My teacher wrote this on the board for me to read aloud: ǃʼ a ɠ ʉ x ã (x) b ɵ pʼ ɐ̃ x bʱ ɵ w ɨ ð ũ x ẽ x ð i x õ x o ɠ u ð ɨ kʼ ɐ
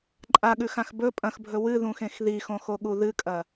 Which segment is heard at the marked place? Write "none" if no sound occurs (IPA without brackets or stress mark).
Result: x